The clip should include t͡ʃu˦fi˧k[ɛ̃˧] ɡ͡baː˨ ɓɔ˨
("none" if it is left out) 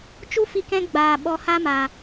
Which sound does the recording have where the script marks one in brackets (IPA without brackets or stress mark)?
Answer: ɛ̃˧